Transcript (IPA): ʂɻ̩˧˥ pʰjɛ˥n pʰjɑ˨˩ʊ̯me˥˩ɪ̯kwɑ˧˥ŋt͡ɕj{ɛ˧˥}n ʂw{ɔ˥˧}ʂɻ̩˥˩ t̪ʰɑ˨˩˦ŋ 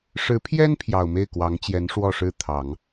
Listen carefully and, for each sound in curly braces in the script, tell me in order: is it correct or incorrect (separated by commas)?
correct, correct